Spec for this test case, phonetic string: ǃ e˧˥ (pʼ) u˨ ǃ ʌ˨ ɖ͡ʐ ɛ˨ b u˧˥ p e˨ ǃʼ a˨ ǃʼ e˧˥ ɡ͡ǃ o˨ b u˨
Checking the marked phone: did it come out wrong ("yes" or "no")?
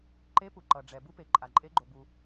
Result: yes